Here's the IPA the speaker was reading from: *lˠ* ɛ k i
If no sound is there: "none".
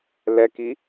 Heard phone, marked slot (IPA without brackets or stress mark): l